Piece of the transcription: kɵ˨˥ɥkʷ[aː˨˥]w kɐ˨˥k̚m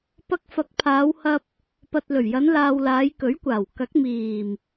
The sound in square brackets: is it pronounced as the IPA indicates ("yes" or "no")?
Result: no